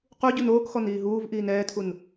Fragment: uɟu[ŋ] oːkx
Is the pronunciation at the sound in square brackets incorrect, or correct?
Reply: incorrect